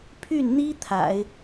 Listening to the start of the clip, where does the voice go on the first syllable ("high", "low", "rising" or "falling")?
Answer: falling